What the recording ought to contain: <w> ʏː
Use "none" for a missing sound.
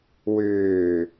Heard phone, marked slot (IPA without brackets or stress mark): w